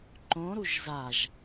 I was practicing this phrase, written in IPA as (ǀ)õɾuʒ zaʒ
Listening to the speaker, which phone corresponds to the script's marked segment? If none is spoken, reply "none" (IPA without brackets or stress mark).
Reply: ǃ